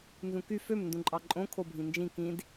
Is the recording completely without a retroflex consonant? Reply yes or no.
yes